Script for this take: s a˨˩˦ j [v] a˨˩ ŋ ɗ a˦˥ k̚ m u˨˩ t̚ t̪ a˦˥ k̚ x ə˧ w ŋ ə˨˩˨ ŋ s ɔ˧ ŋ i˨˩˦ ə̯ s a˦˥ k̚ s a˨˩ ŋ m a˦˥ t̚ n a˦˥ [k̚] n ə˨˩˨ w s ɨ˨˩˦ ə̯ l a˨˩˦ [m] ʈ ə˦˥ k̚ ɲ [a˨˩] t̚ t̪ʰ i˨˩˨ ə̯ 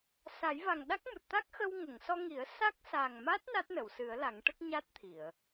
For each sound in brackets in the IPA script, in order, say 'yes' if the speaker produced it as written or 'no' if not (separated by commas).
yes, no, no, no